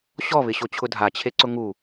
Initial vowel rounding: rounded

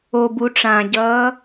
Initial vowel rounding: rounded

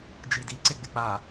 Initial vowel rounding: unrounded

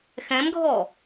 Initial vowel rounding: unrounded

